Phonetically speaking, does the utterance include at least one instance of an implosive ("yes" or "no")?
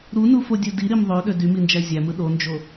yes